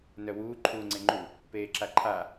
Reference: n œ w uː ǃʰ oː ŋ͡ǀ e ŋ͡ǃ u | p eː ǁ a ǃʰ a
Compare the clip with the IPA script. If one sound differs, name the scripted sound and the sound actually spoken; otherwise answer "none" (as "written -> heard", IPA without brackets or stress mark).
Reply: oː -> uː